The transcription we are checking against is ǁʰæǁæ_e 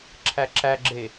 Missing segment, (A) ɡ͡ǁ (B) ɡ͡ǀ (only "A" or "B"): A